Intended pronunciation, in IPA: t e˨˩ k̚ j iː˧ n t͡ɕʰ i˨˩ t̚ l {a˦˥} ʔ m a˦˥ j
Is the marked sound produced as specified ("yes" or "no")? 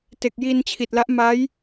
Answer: yes